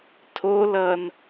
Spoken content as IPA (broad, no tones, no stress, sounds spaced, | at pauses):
tʰ o l ʌ n